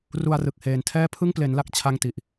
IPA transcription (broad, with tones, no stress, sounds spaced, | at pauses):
r u˧ a̯ r ɯ˨˩ k̚ h eː˨˩ n tʰ ɛː˥˩ pʰ ɯ˥˩ ŋ p l e˩˦ n l a˥˩ k̚ t͡ɕʰ a˥˩ ŋ t i˨˩ ʔ